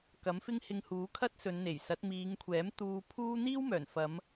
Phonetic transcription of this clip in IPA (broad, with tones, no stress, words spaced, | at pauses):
kɐ˨˥mfɪ˥ŋ hɪ˧ŋhuː˨˥ kʰɐ˥t̚sɵ˨˧nn̪e˨˩jsɐ˨˥t̚ miː˨˧ŋkʷʰɛː˨˥m t̪uː˧ pʰuː˥ n̪iː˥w mœː˨˩nfɐ˨˧m